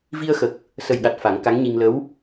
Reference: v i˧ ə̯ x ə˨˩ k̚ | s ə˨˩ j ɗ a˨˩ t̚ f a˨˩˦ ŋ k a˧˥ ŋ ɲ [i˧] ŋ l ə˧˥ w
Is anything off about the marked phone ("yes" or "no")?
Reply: no